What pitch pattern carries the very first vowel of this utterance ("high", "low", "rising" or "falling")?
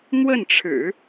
falling